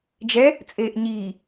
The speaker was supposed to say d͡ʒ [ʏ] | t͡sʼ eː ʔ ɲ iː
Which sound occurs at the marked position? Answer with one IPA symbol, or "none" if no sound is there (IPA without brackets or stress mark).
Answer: ɛ